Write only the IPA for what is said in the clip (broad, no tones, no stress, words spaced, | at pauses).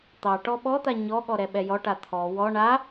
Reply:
t̪ɑ ʈɔɓɔt̪a ɲɔɠɔ ɾɛɓɛjɔʈa t̪ʰɔ wɔ ɳa